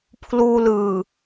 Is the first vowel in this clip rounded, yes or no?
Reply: yes